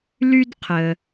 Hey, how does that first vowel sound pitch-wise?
high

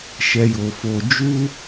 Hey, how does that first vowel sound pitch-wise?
low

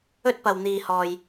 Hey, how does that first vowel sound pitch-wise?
high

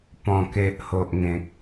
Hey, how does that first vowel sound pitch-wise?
low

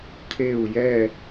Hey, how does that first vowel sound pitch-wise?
falling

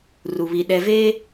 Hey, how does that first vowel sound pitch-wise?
low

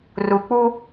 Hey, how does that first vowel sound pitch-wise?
low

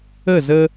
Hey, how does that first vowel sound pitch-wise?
falling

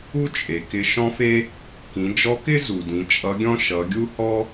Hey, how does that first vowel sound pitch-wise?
high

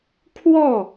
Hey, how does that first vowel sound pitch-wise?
falling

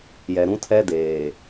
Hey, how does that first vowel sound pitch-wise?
low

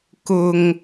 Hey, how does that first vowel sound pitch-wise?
low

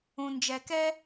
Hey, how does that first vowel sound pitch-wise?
low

